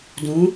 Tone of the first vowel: rising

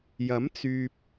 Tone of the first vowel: rising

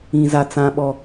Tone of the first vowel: high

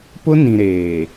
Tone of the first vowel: high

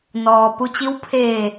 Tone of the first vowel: low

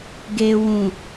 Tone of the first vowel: low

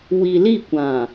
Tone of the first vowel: low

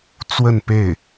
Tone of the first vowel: falling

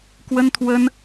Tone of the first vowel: high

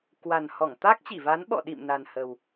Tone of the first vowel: low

